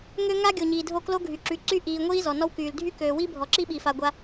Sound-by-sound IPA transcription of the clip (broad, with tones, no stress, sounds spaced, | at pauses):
ŋ ø˦ ŋ a˦ ɡʲ o˨ ɲ iː˨ dʱ o˦˨ k l o˦ ɡʱ y˨ ǁ y˨ ǀ y˦ ʔ iː˨ ŋʷ iː˦ z ɔ˨ n ɔ˦ w k yː˨ l dʱ y˦ k øː˨ w i˦ bʱ ɔ˨ ǁ i˦ ɓ i˨ f a˨ ɡʷ a˦